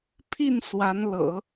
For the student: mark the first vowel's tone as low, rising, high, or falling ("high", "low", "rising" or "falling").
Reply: falling